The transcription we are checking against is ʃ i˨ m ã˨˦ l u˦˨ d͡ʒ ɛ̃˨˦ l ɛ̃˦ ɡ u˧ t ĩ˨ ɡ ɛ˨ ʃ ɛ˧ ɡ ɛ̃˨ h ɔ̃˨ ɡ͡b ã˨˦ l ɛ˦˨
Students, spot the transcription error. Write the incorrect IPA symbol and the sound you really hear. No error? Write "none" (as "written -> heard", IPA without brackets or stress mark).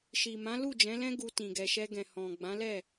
none